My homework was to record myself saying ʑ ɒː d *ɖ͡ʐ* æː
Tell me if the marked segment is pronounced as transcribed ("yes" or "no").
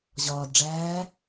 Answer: yes